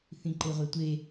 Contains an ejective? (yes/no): no